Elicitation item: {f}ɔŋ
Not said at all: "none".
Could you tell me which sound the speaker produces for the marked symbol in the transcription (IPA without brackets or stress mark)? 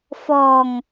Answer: f